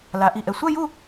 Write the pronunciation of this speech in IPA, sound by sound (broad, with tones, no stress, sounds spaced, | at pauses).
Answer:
l a˩˧ ʔ i˨˩ ʔ ɛ˨˩ sʷ œ˥˧ j u˥˧